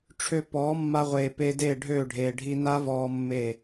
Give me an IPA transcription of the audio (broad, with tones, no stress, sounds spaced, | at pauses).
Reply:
ʈ͡ʂʰ ø˧ p ɔː˨˦ mː a˧ ʁʷ eː˨ p eː˧ d eː˦˨ ɖʱ øː˦˨ ɖʱ eː˨ ɖʱ i˧ n a˦ v ɔː˧ mː e˦˨